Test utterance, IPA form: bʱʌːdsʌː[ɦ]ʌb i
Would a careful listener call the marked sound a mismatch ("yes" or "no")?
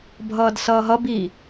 no